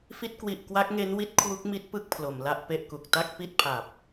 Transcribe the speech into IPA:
f i˦˥ t̚ k w i˨˩ ʔ k w a˦˥ k̚ ŋ e˦˥ n w i˦˥ t̚ kʰ w u˦˥ k̚ m i˦˥ t̚ p ɯ˦˥ k̚ pʰ l o˩˦ m l a˦˥ ʔ p e˥˩ ʔ k u˨˩ k̚ t a˥˩ k̚ p i˥˩ t̚ pʰ a˨˩ p̚

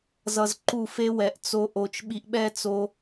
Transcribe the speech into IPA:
z ʌ˨ z ǃ u˦˨ f e˦ w ɛ˨˦ ʔ t͡s o˧ ʔ o˨ t͡ʃ ɓ i˧ ʔ ɓ ɛ˦ t͡s o˧

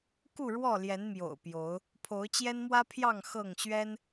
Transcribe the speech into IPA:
k u˥˨ ɻ w ɔ˥˨ l j ɛ˨˦ n m j o̰˨˩ ʊ̯ p j o˨˦ ʊ̯ | pʰ o˨˦ ʊ̯ t͡ɕ j ɛ˦ n m w ä˦ pʰ j ɑ˥˨ ŋ x ɤ˥˨ ŋ ɕ ɥ ɛ˦ n

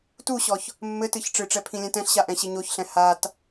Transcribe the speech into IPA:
t u ɕ ɔ ç | mː ɘ t ɨ ç ʈ͡ʂ ɨ ʈ͡ʂ ɛ pʰ ĩ lʲ ɛ̃ t ɛ̃ ɬ ɕ a ʔ ɛ̃ ɕ e ɲ o ç ɬ ɛ̃ h a t

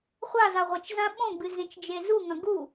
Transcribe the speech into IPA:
χʷ a z a ʁʷ ɐ t͡ʃ z ã ɓ õ ɡ͡b ɨ z ẽ t͡ʃ d͡ʒ e z u ŋ ɐ̃ ɡ u

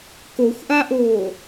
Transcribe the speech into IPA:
k o xʷ ʔ a ʔ oː

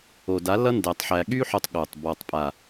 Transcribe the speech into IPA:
o˨ d a˨˦ l ʌ˦ n d æ˧ tˤ ħ æ˧ ɠ y˦ ħ o˧ tˤ ɠ o˨ tˤ b ɔ˨ tˤ pʼ a˨

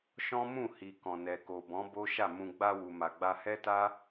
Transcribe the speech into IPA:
ʃ ɔ̃˦ m ũ˦˨ h i˨ k ɔ̃˨ n ɛ˨ k o˨ b ɔ̃˨˦ b o˦ ʃ a˦˨ m ũ˨ ɡ͡b a˧ w u˨ m a˨ ɡ͡b a˧ h ɛ˦ t a˦

